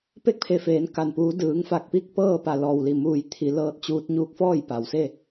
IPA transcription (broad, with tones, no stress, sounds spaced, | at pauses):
p e˥˨ k̚ pʰ e˧˩ f eː˩˧ n k a˩ n p uː˩˧ d ɯː˩˧ ŋ f a˧˩ k̚ p i˥˨ k̚ p ɤː˥˨ p a˧˩ l ɔː˧˩ w l i˧˩ m uː˧˩ j t̪ʰ i˩˧ l ɤː˧ t̚ t͡ɕ uː˧ t̚ ɲ uː˧˥ k̚ f ɔː˥˨ j p a˩ w s e˥˨